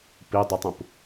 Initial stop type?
plain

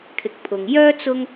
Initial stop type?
aspirated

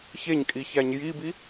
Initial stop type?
ejective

